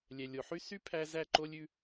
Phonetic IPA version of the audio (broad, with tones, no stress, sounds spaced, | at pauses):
lʲ ɛ˨ lʲ o˨ ħ y˦ s y˦ pʰ æ˦ z æ˦˨ ǃ o˦ lʲ ʉ˦